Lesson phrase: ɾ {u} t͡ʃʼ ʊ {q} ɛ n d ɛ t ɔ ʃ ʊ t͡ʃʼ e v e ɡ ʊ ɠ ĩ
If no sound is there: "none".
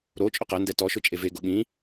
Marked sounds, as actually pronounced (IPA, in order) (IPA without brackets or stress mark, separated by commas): o, q